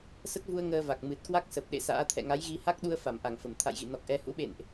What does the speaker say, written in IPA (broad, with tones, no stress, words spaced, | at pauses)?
sə˦˥t̚vu˧ə̯ ŋəː˧va˨˩k̚ mɨ˨˩t̚kwa˦˥k̚ sə˨˩p̚ ɗḛ˧˨sa̰ː˧˥ t̪ʰɛ̰˧˨ŋa˨˦j ɣi˧ ha˦˥k̚ɗu˧ə̯ fa˧˩mʔa˧˩ŋ fə˧˩mt̪ʰa̰˧˨jɣḭ˧˨ nɔ˨˩k̚ʔɛ˨˦ hṵ˧˥ɓḛ˧˨nʔ